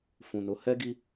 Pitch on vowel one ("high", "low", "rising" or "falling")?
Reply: low